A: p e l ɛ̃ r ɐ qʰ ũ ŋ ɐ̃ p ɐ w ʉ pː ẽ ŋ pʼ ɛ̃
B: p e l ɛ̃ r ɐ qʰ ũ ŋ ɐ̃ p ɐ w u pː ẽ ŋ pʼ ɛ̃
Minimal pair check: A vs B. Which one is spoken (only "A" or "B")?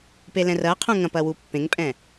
B